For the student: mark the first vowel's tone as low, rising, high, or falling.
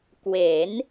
rising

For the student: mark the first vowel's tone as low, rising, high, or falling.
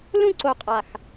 falling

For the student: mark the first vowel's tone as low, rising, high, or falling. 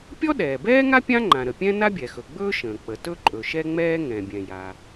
high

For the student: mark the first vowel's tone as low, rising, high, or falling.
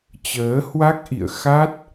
rising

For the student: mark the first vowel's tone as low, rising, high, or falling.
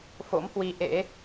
rising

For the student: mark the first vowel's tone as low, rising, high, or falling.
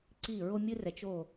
falling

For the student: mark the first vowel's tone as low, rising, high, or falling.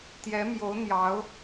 rising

